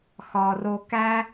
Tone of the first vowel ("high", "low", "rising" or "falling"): low